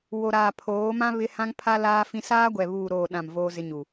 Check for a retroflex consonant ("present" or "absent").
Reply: absent